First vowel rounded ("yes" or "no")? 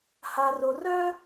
no